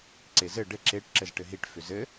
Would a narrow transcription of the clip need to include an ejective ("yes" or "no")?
no